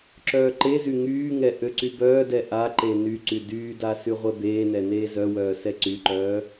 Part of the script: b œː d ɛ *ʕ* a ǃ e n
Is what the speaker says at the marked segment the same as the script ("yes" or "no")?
no